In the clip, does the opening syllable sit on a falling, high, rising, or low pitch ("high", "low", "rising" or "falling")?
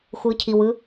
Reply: rising